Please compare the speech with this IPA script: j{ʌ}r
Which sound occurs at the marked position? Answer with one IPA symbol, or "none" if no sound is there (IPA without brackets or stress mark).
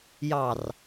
ɑ